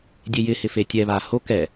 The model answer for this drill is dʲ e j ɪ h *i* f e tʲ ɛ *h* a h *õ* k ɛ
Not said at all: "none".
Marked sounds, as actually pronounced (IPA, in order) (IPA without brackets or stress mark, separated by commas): ɪ, β, o